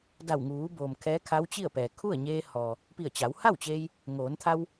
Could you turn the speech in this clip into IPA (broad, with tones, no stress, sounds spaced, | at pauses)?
d a˧˩ w ŋ uː˩˧ b oː˩ m kʰ ɛː˧˥ kʰ a˧˥ w t͡ɕ i˥˨ ə̯ p ɛː˩ kʰ u˥˨ ə̯ ɲ eː˧ h ɔː˩ | p i˧˩ ə̯ t͡ɕ a˩˧ w h a˥˨ w t͡ɕ eː˧ j | ŋ oː˩˧ n t̪ʰ a˧ w